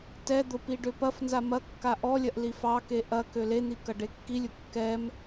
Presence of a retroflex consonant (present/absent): present